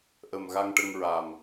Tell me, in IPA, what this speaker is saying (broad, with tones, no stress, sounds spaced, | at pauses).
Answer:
ʔ ə˨˩ m ɣ a˧ ŋ ʈ ə˧ ŋ ɹ a˨˩ m